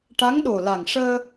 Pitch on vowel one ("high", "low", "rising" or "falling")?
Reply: rising